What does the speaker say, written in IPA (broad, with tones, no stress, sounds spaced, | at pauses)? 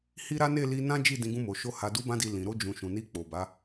h i˦ ɾ a˦ n e˦˨ l i˧ n ã˦ d͡ʒ i˦˨ d ĩ˧ ɡ ũ˧ m o˨ ʃ o˧ h a˨ d u˨˦ b ã˧ d i˨ l ĩ˨ ɾ o˧ d͡ʒ ũ˨ ʃ ũ˨ n i˧ k͡p o˨ b a˨˦